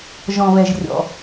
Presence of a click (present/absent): absent